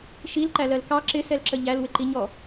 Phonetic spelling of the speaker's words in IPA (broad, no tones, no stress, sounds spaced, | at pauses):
ʃ i l ǃ æ l ɜ l k ɑ ǁ ɪ s ɛ l ǁ ə ʎ æ l w ɪ ǃ i ɲ ɔ